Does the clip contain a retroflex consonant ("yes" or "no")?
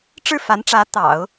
yes